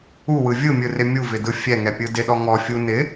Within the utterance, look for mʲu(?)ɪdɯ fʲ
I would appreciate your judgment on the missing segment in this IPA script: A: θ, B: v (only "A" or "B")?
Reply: B